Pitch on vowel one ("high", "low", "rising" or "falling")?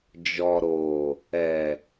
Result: low